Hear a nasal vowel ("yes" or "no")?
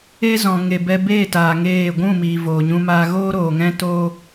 yes